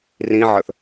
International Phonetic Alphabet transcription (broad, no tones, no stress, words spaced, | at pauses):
rĩʕə˞θ